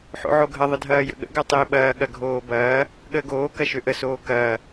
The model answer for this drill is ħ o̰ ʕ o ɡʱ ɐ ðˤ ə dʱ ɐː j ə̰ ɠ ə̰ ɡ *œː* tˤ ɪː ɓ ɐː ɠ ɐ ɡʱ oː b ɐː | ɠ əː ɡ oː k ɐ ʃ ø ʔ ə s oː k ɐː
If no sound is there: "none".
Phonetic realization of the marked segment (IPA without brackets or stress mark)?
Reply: œ